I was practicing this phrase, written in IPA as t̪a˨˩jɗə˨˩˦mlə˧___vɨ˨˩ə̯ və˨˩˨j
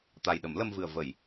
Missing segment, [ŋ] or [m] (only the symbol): m